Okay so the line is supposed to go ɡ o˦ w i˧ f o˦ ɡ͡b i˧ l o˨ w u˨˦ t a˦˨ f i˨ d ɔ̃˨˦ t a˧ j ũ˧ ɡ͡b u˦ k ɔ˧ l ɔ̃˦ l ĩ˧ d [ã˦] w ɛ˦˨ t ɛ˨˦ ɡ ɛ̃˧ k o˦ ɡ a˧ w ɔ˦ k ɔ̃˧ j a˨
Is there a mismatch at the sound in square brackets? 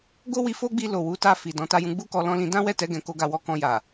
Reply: no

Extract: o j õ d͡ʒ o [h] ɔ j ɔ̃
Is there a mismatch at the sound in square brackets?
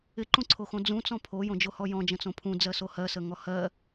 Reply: no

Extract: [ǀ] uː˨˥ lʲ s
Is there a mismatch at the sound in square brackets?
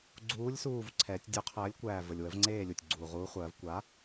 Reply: yes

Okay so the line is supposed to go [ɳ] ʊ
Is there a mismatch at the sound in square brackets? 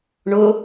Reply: no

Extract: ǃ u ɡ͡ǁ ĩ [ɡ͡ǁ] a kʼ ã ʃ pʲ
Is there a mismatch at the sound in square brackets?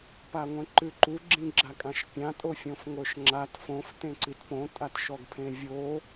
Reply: no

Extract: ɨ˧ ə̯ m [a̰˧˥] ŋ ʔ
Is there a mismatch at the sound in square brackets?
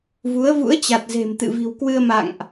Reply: yes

